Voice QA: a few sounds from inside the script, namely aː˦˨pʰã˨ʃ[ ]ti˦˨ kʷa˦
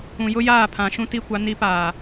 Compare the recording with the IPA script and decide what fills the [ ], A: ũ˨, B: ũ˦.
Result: B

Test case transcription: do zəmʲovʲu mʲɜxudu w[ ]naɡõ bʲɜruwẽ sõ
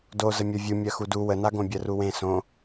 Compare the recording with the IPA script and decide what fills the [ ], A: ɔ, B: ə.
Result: B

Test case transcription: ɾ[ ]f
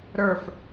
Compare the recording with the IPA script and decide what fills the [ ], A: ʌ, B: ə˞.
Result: B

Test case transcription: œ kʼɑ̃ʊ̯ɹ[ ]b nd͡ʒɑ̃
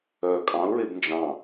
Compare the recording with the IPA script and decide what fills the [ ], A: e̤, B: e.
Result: B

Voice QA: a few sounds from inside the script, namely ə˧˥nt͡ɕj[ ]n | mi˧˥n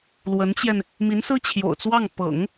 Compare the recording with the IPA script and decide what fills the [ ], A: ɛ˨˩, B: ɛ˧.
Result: B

